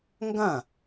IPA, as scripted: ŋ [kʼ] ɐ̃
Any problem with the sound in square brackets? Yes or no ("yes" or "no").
yes